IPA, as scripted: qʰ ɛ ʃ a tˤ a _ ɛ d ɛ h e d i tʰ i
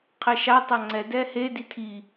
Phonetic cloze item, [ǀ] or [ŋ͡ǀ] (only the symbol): ŋ͡ǀ